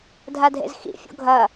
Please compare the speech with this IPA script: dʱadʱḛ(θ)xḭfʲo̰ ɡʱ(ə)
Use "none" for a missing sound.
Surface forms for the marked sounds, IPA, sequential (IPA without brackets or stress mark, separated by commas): z, ɐ